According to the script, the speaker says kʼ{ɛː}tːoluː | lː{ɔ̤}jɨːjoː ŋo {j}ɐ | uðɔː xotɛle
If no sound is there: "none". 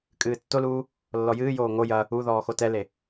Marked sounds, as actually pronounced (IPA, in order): ɨː, ɔ, j

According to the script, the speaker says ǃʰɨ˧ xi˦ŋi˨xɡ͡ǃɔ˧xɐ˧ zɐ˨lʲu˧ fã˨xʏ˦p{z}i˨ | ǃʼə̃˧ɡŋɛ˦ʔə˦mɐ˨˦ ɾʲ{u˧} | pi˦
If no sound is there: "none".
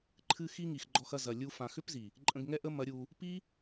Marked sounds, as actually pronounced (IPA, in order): z, u˧

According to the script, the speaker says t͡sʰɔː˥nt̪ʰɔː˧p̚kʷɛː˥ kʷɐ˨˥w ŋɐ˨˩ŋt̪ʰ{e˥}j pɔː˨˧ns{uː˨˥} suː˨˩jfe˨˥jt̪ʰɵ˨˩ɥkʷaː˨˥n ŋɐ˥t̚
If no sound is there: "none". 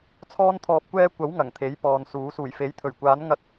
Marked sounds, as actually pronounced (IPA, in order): e˨˥, uː˨˥

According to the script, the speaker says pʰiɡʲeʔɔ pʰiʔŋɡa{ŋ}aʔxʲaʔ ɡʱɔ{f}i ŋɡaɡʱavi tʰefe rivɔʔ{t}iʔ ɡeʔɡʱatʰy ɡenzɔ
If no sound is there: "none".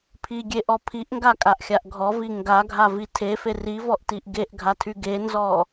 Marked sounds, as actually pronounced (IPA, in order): kʼ, v, t

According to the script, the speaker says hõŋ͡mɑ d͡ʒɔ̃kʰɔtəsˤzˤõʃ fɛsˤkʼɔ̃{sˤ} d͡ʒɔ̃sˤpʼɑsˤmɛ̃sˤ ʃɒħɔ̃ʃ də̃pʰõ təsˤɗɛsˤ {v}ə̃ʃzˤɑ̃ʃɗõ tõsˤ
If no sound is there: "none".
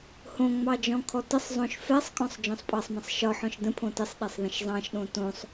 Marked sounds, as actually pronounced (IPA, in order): sˤ, ð

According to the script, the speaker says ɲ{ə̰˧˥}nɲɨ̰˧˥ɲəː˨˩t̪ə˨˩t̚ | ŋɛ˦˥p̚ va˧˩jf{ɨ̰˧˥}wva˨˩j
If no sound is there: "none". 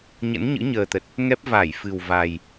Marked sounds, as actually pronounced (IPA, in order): ə̰˧˥, ɨ˨˩

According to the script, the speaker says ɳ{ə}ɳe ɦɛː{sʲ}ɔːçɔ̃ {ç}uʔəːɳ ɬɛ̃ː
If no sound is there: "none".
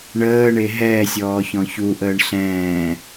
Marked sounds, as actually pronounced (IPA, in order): əː, sʲ, ç

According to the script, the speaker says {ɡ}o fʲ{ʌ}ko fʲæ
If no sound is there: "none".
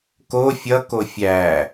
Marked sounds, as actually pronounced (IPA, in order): k, ʌ

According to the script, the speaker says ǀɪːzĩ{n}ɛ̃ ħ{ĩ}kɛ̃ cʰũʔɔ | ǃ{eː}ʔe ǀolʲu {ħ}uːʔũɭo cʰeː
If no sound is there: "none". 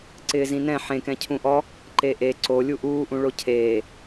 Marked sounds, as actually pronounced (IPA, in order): n, ẽ, e, ʔ

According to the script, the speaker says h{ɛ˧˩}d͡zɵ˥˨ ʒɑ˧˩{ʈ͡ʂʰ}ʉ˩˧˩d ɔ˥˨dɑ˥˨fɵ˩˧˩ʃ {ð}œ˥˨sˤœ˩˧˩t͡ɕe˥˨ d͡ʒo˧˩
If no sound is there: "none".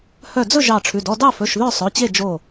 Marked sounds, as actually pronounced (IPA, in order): œ˧˩, ʈ͡ʂʰ, ð

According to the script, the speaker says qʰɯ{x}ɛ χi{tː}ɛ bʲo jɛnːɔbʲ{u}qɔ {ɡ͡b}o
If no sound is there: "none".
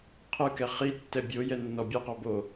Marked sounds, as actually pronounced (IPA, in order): k, tː, ɯ, b

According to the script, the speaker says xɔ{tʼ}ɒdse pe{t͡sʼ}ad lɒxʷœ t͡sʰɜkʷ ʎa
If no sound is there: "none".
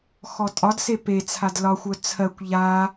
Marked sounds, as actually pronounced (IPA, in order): tʼ, t͡sʰ

